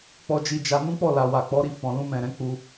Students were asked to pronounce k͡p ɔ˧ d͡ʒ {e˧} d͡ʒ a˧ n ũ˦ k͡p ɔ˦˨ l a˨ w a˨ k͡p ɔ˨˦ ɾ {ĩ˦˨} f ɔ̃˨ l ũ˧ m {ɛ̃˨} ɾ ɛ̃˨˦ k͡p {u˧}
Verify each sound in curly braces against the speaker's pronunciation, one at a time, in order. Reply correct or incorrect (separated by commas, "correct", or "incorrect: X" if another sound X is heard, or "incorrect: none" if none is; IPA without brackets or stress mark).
incorrect: i˧, incorrect: i˦˨, correct, correct